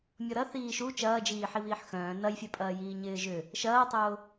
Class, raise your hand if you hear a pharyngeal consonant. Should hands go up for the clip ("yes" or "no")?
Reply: yes